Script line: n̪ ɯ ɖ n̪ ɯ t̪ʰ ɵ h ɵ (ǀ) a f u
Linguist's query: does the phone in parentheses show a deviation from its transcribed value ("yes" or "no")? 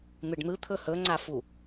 yes